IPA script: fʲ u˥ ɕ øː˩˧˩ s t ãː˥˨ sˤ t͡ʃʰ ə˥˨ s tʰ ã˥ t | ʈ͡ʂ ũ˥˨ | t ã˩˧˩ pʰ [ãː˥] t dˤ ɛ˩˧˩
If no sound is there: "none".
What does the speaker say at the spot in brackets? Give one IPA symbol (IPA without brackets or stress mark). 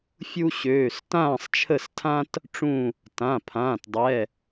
ãː˩˧˩